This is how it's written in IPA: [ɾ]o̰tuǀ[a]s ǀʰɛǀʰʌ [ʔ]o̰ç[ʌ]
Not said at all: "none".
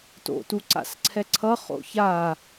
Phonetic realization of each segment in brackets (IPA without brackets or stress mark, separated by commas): t, a̰, χ, a